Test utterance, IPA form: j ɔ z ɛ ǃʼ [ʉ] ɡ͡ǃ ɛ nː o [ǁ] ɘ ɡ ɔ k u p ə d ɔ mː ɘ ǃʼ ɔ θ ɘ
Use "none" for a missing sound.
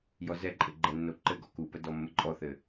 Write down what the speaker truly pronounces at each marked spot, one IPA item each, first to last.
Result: ɘ, ǃ

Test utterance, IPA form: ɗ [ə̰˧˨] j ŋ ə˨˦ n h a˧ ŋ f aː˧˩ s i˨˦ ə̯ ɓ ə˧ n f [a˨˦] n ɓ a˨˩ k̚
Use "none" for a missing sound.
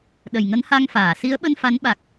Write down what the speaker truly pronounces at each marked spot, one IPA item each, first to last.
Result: ə˨˩, a˨˦

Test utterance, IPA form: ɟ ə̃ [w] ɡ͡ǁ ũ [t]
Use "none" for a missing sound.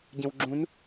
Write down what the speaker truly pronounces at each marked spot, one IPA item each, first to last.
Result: w, n

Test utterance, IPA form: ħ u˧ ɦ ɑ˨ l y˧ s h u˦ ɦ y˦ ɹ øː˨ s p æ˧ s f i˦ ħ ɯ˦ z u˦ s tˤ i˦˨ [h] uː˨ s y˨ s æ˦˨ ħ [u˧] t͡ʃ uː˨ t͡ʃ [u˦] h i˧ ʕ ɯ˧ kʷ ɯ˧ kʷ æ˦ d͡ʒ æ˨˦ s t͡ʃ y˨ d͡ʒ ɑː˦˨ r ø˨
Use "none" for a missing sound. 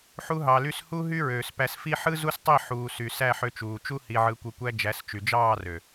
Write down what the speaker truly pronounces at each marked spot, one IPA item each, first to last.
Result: ħ, ø˧, u˦

